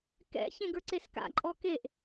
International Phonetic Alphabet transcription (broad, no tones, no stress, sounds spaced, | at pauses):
k ɛ̰ ç ẽ ɡ ə˞ ǀ e s k a̰ ǃʼ ɔ k e ʔ